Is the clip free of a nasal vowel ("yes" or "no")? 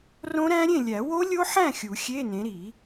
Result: no